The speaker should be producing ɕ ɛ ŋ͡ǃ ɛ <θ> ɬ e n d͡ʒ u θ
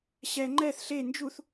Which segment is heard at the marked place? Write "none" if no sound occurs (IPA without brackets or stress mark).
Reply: θ